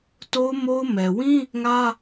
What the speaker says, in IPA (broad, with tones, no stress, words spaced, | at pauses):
to˦ʊ̯mo˦ʊ̯mɛ˨ wĩ˦ | ŋä˦